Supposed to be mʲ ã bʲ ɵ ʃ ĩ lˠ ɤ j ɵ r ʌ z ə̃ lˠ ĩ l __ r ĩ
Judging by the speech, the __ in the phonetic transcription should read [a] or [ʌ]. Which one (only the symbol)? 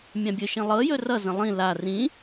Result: a